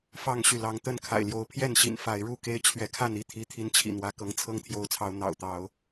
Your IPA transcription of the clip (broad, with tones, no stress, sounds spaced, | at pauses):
f ɑ˦ ŋ ɕ y˨ l ɑ˨˦ ŋ t̪ ə˥˨ n kʰ a̰˨˩ ɪ̯ l j o˨˦ ʊ̯ pʰ j ɛ˥˨ n ɕ ḭ˨˩ n f a˨˦ ɪ̯ ɻ u˥˨ k e˦ ɪ̯ t͡ɕʰ ɥ ɛ˨˦ kʰ a˥˨ n i˥˨ t̪ʰ i˨˦ t̪ʰ i˨˦ n t͡ɕʰ ḭ˨˩ n̪ w ä˨˦ k ɤ˨˦ ŋ t͡sʰ ɤ˥˨ ŋ t̪ʰ j o˨˦ ʊ̯ t͡sʰ ɑ˨˦ ʊ̯ n̪ ɑ̰˨˩ ʊ̯ t̪ ɑ˨˦ ʊ̯